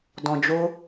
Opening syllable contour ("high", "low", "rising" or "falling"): low